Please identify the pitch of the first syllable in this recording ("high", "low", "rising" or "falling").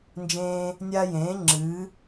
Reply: high